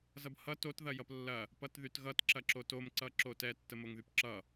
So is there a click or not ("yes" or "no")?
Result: yes